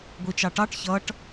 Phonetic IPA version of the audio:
ɡʷ i t͡ʃ ɑ ʈ ɑ ʈ ç ʌ ʈ

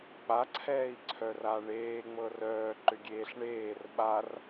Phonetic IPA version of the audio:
k͡p a ǀʰ ɛː i̯ ǀʰ œ r a ɳ eː ŋ͡m ɤ r œː ǃ ʏ ɡʲ eː ɬ ɳ eː r ɓ a r

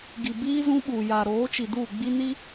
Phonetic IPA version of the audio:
ɡ i˨ b iː˦ z ũ˦ ɓ uː˨ j a˨ ɾ oː˨˦ t͡ʃ i˨ d uː˦˨ ɡ͡b i˦ n i˦

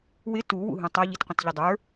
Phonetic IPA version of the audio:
w ɪ t u w ṵ ɦ ũ tˤ ʌ ʎ i t qʷ ə̃ t ʎ ɪ dˤ ə˞

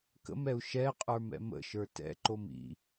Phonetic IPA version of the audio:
k ə̰ m ɛ u̯ ʃ ɛ qʼ ə˞ m ɛ̰ m ə̰ ʃ ə˞ t ɛ̰ ǃ o m ḭ

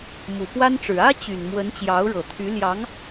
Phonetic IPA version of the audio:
m u˨˩ p w a˥ n ʈ͡ʂ ɻ̩˨˩ ä˥ t͡ɕ y˨˩ n m w ə˧˥ n t͡ɕ j ɑ˧˥ ʊ̯ ɻ ɤ˨˩ t̪ʰ y˧˥ l j ɑ˧˥ ŋ

